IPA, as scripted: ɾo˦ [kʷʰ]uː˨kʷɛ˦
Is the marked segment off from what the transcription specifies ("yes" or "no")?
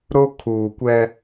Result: yes